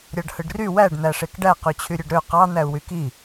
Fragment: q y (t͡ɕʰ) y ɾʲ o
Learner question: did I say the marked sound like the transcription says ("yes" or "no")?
yes